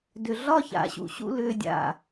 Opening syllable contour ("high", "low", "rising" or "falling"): low